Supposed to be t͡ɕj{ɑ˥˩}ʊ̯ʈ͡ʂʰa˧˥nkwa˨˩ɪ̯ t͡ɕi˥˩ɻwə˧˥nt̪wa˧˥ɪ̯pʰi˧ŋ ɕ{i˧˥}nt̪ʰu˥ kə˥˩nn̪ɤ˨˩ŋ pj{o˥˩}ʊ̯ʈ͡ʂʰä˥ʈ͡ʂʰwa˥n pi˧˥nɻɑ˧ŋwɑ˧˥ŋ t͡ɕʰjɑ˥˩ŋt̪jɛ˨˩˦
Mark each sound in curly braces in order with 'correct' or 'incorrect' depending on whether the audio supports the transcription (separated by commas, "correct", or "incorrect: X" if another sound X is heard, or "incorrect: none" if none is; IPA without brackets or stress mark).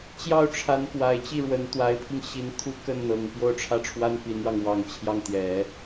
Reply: correct, correct, correct